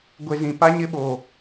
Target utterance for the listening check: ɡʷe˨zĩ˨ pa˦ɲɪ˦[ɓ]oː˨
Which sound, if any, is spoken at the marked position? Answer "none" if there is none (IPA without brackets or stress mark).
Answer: ɓ